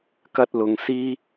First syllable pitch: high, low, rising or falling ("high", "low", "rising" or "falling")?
high